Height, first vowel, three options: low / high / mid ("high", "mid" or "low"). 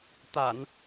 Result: low